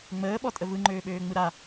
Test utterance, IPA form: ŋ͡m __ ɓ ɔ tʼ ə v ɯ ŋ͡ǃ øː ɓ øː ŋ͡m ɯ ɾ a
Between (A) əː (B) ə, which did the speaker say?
A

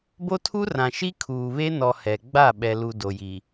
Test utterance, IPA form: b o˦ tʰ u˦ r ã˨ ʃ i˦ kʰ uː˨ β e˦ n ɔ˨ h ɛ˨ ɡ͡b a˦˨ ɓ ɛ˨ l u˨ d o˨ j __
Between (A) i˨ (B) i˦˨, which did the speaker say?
A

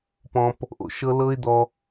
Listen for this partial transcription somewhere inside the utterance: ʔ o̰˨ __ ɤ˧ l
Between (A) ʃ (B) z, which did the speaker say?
A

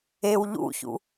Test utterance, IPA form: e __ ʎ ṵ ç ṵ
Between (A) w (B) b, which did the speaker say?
A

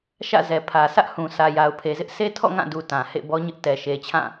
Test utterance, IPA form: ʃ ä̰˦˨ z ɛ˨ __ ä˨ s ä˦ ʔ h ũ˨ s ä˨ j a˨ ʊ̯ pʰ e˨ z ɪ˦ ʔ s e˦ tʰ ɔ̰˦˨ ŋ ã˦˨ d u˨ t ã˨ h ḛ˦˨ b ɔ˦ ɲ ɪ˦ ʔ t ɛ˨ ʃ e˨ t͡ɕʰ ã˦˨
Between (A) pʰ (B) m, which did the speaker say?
A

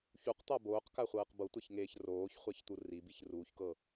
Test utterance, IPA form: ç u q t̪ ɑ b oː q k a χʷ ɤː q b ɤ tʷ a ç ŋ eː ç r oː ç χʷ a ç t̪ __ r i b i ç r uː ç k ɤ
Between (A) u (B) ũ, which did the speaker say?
A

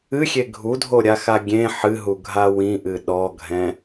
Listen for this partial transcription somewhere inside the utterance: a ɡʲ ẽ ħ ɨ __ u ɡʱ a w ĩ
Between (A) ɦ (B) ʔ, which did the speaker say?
A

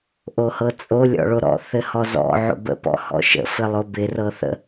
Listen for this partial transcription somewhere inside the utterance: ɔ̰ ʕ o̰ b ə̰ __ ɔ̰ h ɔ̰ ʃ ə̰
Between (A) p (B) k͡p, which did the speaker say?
A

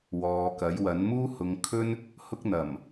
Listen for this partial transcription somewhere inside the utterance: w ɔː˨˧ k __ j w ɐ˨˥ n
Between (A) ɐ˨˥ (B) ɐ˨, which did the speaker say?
A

